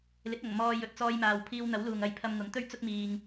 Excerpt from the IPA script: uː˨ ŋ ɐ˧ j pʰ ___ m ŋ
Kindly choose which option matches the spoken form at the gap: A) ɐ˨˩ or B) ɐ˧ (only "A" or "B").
B